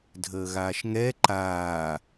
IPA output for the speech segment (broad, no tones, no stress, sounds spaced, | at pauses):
dʱ əː ɣ aː ʃ ŋ ɛ ǃ aː